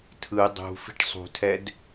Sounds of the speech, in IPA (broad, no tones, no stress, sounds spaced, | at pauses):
tʰ ɯ dˤ ṳ f i̤ ʈ sˤ ṳ tʰ ɛ d